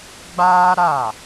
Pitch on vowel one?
high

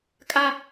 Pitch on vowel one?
high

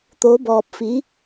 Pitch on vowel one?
rising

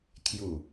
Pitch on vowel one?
low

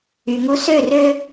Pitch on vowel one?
low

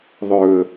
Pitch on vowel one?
low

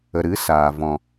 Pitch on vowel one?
low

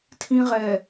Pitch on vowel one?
low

